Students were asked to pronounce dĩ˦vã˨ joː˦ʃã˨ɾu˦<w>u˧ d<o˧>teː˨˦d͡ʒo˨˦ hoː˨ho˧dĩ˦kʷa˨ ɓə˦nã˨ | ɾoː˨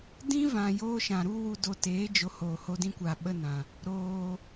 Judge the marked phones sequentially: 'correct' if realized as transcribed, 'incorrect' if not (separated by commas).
correct, correct